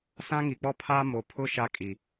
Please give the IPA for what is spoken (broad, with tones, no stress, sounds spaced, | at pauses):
s ã˦ ŋ i˨ k͡p ɔ˦ pʰ aː˦ m o˨ pʰ ʊ˦ ʃ a˦ kʼ i˨